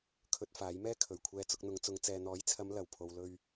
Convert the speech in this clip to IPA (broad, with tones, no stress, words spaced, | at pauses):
kʰɵ˧t̚faː˨˥jmɛː˥ kʰɵ˨˩ɥkʷʰɛː˧ t͡sʊ˧k̚n̪ʊ˨˧ŋt͡sʊ˨˧ŋ t͡sɛː˨n̪ɔː˨˥jt͡sʰɐ˨˧m lɐ˨˩w pʰo˨wlɵ˧ɥ